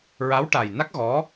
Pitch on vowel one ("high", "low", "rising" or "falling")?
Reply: rising